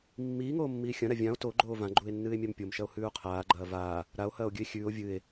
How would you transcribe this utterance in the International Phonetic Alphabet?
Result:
mː iː ŋ oː mː iː xʲ ɐ̃ ɾ a vʲ ã o̯ t o ɡ͡ǃ oː v ã ɡ͡ǃ u e̯ nː ɨː e̯ mʲ a m pʲ o m ʃ ɐ o̯ h ʉː o̯ qʰ aː ɡ͡ǃ ɐː v aː | ɾ a o̯ h ɐː o̯ ɡʲ ʉ e̯ xʲ ʉː o̯ vʲ ɨ e̯

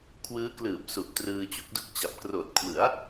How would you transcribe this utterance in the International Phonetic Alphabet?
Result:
kʰ w ɯː˦˥ k l ɯː˨˩ p̚ s u˨˩ ʔ t r ɯː˧ t͡ɕ u˥˩ k̚ d u˥˩ k̚ t͡ɕ a˨˩ p̚ k r oː˨˩ t̚ kʰ w ɯ˩˦ a̯

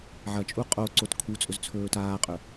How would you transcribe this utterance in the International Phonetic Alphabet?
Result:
ʕ ɐ t͡ʃʼ u qʼ o ǀ o t kʰ u t͡sʼ ɵ z t͡sʰ ɵː t aː qʼ ɵ

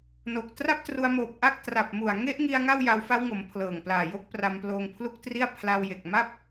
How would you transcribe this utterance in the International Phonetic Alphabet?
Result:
n o˨˩ k̚ t r a˥˩ p̚ t r u˧ a̯ m oː˨˩ p̚ ʔ a˥˩ k̚ t r a˨˩ p̚ m u˨˩ a̯ ŋ e˦˥ ʔ ŋ i˧ a̯ ŋ a˥˩ w j a˧ w f a˦˥ w ŋ o˩˦ m pʰ l ɤː˨˩ ŋ p l aː˨˩ j o˦˥ k̚ p r a˧ m p l oː˧ ŋ pʰ l u˥˩ k̚ t r i˥˩ a̯ pʰ l a˧ w j e˨˩ k̚ m a˥˩ p̚

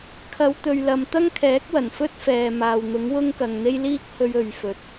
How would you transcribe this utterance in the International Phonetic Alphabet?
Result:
kʰ ɐ˨˧ w t̪ ɵ˨ ɥ l ɐ˨ m t̪ ɐ˥ ŋ kʰ ɛː˨˥ k̚ w ɐ˨˩ n f ɵ˥ t̚ f ɛː˨ m aː˨ w n̪ ʊ˨˥ ŋ w ʊ˥ ŋ k ɐ˨ ŋ n̪ e˥ j l iː˥ k̚ h ɵ˧ ɥ ɵ˨ ɥ f ɵ˨˥ t̚

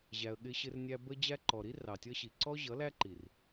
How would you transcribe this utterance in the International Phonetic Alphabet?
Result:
ʑ æ˧ ə̯ ɠ ɪ˦ ɕ ɪ˦ r nʲ æ˦ b ə˦ d͡ʑ æ˧ ǃ ɔ˨ ɾ i˦ r ɑ˨ tʲ ʌ˦ ɕ i˨ ǀ ɔ˦ ʑ ʌ˨˦ l æ˦ ǃ i˨ r

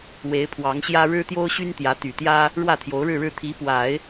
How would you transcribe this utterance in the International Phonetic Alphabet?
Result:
w e˧˥ ɪ̯ pʰ w ɑ˧˥ ŋ ɕ j ä˥ ɻ ɻ̩˥ t̪ j o˥ ʊ̯ ɕ y˥ n t̪ j ä˧˥ t̪ y˨˩ t̪ j ä˥ | ɻ w ä˥˩ t̪ʰ j o˧˥ ʊ̯ ɻ ɻ̩˥˧ ɻ ɻ̩˥˩ t̪ʰ i˧˥ p w a˨˩˦ ɪ̯

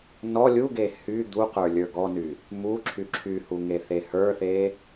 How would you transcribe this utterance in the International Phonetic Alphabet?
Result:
n ɔ lʲ u ɡ e h y d̪ u q ə˞ lʲ ə˞ ɡ ɔ n y | m u ǁʰ y ǁʰ y h u ŋ e θ e h ə˞ θ e

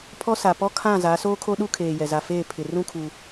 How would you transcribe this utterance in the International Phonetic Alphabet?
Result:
pʰ ɔ˦ s a˨ p ɔ˦ kʰ ã˦˨ z a˨˦ s oː˦ kʰ o˦ ɗ u˦ kʰ eː˨ j ɛ˨ z a˨ f eː˦˨ pʰ ɪ˨ r ũ˦˨ kʰ u˨

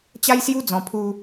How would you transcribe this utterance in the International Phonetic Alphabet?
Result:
t͡ɕ a˦ j s j u˦ d͡z ɔ̃˧ pʰ u˦

